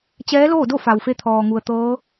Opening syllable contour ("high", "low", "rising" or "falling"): rising